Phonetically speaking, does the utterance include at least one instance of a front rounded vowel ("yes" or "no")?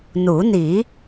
no